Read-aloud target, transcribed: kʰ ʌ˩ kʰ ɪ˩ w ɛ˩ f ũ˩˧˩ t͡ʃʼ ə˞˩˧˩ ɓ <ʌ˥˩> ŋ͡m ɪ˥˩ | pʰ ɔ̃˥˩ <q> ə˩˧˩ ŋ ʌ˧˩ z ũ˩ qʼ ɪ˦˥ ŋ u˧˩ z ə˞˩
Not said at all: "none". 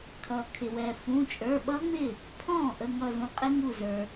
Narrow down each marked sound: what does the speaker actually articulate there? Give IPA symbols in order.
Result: ʌ˦˥, ʔ

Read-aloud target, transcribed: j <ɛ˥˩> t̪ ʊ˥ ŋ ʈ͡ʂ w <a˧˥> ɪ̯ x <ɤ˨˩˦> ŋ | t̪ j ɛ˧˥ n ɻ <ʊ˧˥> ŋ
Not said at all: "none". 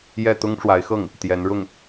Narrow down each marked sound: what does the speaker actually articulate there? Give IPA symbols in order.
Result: ɛ˥˩, a˧˥, ɤ˥˩, ʊ˥˩

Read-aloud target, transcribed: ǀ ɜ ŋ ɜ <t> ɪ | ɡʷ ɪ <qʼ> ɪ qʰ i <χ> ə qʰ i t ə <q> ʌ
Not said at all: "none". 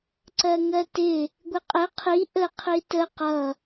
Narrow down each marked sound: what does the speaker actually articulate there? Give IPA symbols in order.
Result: t, qʼ, ʔ, q

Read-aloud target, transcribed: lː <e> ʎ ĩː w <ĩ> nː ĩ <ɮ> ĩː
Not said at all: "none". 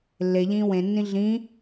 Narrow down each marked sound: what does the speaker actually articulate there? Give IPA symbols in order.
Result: e, ẽ, ɮ

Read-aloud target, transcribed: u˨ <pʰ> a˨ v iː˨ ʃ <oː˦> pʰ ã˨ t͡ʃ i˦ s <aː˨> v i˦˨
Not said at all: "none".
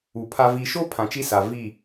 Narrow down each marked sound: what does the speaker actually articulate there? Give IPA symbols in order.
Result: pʰ, oː˦, a˨

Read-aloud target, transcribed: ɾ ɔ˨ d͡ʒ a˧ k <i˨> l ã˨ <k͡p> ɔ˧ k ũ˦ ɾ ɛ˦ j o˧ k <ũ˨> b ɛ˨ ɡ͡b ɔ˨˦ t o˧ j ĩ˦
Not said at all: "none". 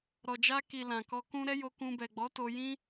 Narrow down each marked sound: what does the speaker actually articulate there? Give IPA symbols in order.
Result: i˨, k, ũ˧

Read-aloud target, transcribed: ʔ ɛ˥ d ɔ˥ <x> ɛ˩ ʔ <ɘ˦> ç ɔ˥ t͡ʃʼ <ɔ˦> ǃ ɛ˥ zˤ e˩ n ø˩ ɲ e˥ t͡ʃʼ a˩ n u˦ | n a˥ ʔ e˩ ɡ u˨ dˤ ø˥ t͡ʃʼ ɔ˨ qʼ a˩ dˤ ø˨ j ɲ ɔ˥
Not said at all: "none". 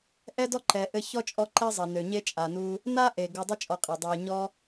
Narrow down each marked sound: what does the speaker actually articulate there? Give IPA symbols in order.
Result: ǃ, ɘ˦, ɔ˦

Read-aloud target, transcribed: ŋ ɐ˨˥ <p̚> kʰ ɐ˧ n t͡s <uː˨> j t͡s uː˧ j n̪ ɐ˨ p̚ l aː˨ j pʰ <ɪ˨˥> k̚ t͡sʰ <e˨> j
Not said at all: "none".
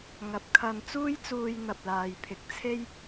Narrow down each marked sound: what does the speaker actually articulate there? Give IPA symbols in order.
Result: p̚, uː˥, ɪ˨˥, e˥

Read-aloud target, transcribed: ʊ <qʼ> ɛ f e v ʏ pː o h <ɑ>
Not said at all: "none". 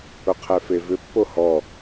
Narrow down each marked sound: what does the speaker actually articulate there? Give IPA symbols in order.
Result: qʰ, ɔ

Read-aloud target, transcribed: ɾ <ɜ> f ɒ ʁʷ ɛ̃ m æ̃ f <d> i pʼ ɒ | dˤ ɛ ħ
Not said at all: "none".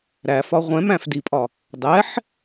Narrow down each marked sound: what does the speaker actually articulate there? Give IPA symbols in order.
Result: æ, d

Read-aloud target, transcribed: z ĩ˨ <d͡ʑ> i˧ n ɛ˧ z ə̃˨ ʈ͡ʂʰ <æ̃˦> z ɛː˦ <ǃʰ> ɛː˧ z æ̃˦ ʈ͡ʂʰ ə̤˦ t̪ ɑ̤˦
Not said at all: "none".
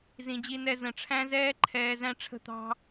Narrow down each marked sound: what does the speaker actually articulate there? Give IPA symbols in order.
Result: d͡ʑ, æ̃˦, ǃʰ

